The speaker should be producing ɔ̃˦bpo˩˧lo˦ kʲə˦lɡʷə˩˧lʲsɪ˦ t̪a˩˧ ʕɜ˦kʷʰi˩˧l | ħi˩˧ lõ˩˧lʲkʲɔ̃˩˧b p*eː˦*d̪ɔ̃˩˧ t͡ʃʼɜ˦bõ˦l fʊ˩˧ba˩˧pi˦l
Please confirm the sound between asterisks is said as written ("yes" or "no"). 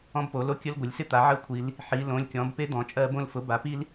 no